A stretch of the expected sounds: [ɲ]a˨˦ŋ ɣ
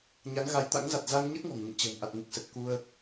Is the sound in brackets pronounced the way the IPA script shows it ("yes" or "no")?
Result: yes